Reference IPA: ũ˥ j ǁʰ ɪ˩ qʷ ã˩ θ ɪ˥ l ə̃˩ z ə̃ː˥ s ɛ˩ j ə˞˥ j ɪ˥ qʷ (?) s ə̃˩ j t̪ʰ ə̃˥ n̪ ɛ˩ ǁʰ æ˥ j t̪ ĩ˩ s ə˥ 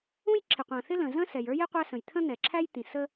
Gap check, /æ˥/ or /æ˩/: æ˥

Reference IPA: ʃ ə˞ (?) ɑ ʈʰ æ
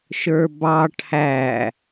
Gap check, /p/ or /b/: b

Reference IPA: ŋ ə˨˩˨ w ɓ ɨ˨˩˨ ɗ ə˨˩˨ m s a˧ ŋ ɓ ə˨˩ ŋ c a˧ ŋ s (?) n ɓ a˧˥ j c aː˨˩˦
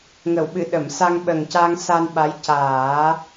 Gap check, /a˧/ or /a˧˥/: a˧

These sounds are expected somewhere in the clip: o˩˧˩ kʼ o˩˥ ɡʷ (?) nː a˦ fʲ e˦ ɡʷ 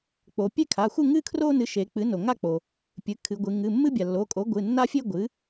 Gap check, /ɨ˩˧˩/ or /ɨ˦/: ɨ˩˧˩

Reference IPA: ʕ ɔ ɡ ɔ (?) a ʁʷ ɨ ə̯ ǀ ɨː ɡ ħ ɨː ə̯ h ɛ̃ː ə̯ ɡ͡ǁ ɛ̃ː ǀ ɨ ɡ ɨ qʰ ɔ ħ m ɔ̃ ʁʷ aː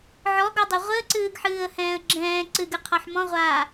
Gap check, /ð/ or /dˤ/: dˤ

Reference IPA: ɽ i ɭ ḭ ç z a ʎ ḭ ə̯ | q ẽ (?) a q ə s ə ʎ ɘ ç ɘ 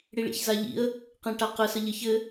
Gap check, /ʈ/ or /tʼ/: ʈ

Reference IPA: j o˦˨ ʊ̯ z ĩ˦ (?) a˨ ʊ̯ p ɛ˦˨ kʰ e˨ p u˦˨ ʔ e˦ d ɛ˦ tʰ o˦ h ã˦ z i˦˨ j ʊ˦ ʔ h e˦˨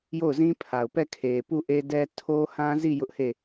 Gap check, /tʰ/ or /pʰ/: pʰ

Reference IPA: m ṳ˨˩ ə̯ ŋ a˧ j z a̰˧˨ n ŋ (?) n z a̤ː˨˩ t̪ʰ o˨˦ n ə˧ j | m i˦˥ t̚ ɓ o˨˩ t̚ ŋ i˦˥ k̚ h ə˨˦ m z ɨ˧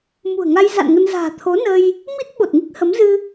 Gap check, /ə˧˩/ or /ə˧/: ə˧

